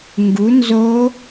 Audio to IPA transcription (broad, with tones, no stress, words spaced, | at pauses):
ŋɡu˩˥nzo˧˥